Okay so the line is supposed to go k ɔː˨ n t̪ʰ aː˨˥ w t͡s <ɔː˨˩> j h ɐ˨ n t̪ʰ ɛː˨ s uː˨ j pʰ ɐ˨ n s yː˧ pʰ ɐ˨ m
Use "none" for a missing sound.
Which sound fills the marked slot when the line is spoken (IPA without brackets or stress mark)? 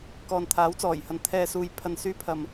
ɔː˨˩